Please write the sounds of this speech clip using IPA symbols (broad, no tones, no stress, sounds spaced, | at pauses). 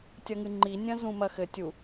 tʲ ɐ ŋ ɨ ŋ͡ǃ i nʲ ɐ̃ z ũ m ɐ x ɘ tʲ u